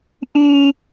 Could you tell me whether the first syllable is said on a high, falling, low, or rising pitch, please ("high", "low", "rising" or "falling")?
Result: low